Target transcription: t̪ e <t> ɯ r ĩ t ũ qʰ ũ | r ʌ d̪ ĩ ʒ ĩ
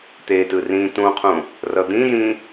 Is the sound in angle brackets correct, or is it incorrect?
correct